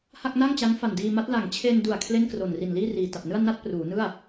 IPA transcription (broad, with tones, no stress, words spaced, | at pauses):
ha˥˩k̚na˥˩ŋt͡ɕa˦˥ŋ fa˨˩ndiː˧ma˦˥t̚ la˨˩ŋt͡ɕʰe˧ndu˨˩a̯ kʰle˥˩nkro˨˩nri˨˩n liː˥˩riː˨˩ta˨˩p̚nɯ˥˩a̯ na˥˩t̚pruː˩˦nɯ˥˩a̯